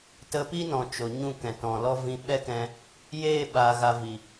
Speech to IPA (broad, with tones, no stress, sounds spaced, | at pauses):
t ə˧ p i˦ n ɔ̃˨ t͡ʃ o˨ ɲ ũ˦˨ k ɛ̃˨ t ɔ̃˨ l ɔ˦ v ĩ˧ ɓ ɛ˦ k ɛ̃˧ | j eː˦˨ ɓ aː˨ ɣ a˨ v i˨